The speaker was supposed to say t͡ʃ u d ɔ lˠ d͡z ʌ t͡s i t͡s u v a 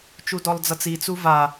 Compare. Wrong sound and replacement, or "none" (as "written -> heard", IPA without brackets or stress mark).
none